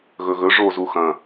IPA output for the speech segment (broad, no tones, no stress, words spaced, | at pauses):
ɣɵɣɵ ʐozu xɐ̃